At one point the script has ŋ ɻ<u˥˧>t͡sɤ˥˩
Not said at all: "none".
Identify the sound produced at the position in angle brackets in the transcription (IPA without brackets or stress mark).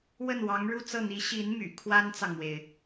u˥˧